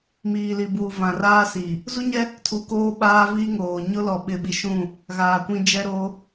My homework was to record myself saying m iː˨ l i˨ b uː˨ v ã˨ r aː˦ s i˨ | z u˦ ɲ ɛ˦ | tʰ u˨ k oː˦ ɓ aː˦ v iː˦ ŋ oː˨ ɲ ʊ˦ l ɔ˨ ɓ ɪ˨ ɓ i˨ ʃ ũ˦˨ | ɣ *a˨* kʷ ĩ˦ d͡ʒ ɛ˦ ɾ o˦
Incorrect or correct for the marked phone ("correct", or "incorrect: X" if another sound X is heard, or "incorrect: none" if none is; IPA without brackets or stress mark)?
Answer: incorrect: aː˨